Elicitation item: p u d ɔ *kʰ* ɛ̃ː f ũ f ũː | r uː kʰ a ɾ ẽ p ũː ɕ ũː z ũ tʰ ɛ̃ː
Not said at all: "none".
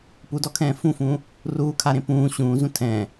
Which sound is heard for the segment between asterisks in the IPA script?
kʰ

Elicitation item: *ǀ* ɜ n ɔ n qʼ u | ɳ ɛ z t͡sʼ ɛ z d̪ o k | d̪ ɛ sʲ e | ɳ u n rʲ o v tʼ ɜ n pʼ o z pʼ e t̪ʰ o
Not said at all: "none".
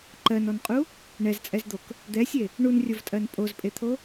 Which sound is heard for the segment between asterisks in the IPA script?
ǃ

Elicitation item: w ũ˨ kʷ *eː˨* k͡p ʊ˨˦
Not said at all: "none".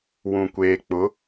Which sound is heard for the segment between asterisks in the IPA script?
eː˨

